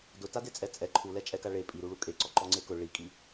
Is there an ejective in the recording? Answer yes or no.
yes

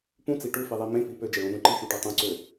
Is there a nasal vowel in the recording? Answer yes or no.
yes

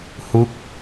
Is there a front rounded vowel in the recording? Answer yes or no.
no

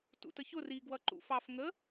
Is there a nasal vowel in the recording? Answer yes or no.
no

